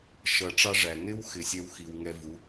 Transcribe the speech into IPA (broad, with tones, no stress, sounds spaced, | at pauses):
ʃ ʌ˧˩ ʈ͡ʂ ɑ˥ ʐ æ˩ n ɪ˥ w x ɪ˩ sʲ ɛ˧ w x i˩ w ŋ ɛ˧ v u˩˥